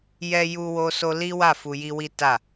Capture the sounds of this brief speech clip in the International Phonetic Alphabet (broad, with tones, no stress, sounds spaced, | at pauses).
j ɛ˧ j u˧ w o˧ s o˧ l i˦ w a˦˨ f u˧ j i˦ w i˦ t a˦˨